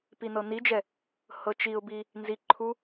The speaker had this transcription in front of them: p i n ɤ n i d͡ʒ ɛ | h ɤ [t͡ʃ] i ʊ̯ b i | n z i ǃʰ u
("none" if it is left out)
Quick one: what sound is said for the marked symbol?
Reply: t͡ʃ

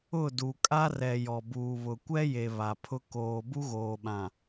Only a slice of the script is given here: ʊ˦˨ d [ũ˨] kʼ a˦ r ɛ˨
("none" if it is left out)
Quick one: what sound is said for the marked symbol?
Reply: u˨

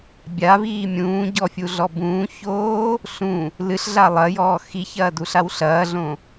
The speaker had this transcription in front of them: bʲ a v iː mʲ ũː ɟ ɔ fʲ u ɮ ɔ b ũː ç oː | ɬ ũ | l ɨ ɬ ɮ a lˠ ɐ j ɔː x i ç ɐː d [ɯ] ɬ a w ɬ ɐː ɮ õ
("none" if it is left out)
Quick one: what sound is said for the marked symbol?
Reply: u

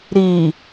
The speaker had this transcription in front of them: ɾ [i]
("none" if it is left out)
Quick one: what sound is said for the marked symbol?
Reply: i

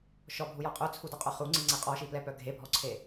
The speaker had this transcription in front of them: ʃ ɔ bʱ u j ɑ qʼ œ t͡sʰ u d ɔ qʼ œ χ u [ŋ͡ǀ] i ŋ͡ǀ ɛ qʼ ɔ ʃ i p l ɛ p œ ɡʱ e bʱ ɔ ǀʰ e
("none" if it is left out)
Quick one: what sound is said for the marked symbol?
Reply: ŋ͡ǀ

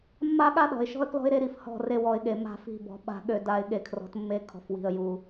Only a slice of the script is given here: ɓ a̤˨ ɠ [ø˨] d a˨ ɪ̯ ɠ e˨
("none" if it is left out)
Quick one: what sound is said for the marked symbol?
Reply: ø˨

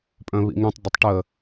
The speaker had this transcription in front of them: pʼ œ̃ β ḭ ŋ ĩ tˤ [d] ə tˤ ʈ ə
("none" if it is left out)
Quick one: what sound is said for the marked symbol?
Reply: d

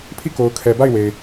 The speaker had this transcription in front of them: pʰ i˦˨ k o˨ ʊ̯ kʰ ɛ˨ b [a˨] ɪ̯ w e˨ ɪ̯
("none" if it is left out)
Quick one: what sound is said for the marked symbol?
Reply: a˦˨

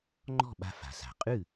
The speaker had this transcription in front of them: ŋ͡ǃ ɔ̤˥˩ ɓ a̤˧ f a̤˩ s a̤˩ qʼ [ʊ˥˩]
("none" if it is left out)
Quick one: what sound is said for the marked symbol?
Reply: ʉ˥˩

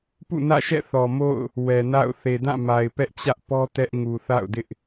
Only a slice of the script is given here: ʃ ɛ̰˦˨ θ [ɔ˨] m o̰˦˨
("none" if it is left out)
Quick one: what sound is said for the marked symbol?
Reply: ɔ˨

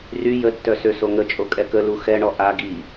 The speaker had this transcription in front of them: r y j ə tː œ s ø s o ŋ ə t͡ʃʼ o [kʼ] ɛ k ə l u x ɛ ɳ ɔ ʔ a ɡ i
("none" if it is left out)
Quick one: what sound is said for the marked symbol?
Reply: kʼ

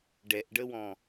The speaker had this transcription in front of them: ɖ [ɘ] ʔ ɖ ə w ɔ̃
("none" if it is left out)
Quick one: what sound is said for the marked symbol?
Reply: ɛ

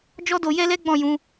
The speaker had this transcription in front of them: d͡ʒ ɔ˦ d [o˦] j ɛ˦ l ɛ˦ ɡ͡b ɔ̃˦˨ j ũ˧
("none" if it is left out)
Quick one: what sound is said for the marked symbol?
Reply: o˧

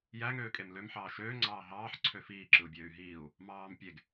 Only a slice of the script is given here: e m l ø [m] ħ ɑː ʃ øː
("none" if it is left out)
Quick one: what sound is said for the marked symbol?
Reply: m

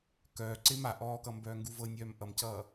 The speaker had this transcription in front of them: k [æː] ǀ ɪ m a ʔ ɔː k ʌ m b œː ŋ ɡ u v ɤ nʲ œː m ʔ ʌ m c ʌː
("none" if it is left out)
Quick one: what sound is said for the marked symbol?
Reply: œː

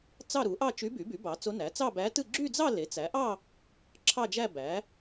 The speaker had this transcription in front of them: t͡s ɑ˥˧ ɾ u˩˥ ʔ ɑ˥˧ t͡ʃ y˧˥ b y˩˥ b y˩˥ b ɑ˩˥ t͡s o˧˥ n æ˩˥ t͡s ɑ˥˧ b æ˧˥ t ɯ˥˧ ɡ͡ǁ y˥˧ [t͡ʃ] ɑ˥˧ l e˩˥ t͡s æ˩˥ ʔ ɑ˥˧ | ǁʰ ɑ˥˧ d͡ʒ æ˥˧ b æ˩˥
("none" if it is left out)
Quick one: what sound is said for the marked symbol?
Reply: d͡z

